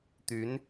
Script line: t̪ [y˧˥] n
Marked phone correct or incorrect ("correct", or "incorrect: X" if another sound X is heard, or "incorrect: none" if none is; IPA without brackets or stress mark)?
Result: correct